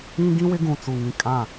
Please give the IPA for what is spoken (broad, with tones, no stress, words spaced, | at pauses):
ĩ˦ ɡĩ˦wɪ˦ɡũ˨ t͡su˨ ŋĩ˨kʼã˦˨